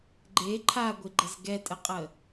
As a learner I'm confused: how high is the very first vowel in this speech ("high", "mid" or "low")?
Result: mid